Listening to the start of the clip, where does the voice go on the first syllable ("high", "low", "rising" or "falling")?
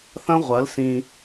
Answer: high